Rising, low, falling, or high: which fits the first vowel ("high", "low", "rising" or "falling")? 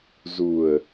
low